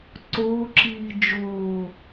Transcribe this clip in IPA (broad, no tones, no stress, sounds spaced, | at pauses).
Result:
ǀ oː ǁ iː d͡ʒ oː